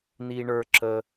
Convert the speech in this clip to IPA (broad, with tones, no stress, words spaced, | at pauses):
ni˧ɳə˞˧ ǁə˧